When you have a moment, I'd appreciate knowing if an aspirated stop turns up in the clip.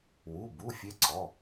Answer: no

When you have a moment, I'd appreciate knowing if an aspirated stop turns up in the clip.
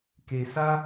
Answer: no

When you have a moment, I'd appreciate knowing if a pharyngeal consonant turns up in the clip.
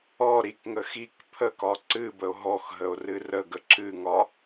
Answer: no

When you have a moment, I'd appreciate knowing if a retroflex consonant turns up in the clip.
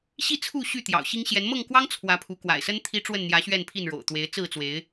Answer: yes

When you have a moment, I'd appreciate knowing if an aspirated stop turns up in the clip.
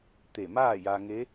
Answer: no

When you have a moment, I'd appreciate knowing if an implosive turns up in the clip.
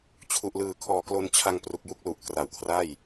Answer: no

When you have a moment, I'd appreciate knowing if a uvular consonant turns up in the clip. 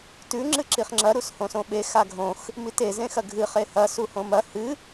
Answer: yes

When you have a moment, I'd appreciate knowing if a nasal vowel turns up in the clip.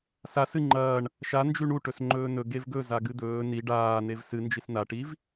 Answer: no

